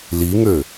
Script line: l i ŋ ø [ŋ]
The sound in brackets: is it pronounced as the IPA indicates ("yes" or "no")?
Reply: no